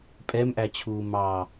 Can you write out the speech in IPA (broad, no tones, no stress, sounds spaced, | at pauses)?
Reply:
pʼ ɛ m ʔ æ t͡ɕʰ uː m ɑ